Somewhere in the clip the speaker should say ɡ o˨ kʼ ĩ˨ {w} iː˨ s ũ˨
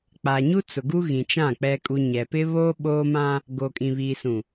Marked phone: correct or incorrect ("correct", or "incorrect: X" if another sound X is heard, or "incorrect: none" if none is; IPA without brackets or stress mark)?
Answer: incorrect: β